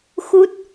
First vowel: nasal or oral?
oral